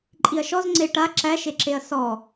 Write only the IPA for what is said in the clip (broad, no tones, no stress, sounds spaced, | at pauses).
ǃʼ i ɐ̯ ʃ ɔ z ŋ͡ǀ e ʈ a ǁ æ ʃ e ǁ e ɐ̯ s ɔ